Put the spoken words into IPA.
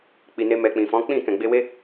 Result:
k͡pi˨ne˧ mɛ˨k͡pĩ˨fɔ̃˨˦ k͡pĩ˦˨kɛ̃˨ɡ͡be˧we˦

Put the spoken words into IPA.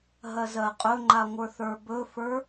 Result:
ɦɜzɜqʼɵŋ͡ǃa ŋʷə˞θə˞bɵfə˞

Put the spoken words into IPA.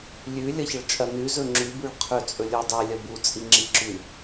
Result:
lʲʉ lʲɐçɐɭt͡ʃʼɐ nʉ zɵŋ͡ǁʉ bʉɭqʰɵ t͡sʼɵlʲodˤe lʲɐbu t͡sʼiŋ͡ǁiǁʉ

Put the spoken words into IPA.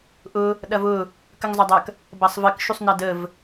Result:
ʔʊ | ɗɐvʊ | kəŋzˤɐdˤɐk | bɐsˤvək ʃusˤnɐdəv

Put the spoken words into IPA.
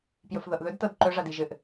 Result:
pjɵfðɤʔðɵdtɤd ǃɵʐad iʒɘʔ

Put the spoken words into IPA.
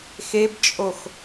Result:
xebt͡ʃʼox

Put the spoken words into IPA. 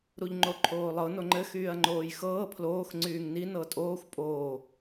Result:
ɾuʎŋ͡ǃoǃʰoːlˠɤ noŋ͡ǃɘ xyːɐ̯ŋ͡ǃoːjxɤː pʰloːx ŋ͡ǀyːŋni nɤtʼoːxʷ pʼoː

